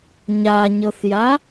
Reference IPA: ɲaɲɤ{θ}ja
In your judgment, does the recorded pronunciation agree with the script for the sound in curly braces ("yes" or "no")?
yes